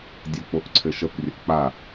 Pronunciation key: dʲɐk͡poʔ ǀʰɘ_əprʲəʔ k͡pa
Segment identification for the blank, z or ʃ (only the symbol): ʃ